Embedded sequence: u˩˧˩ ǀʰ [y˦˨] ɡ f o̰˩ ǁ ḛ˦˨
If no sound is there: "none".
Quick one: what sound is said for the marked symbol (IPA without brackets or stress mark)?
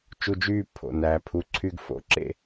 y˦˨